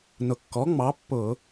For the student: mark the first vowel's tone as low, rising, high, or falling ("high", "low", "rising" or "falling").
low